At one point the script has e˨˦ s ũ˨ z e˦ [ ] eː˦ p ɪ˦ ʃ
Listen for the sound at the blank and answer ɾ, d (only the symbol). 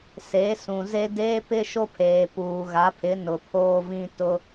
d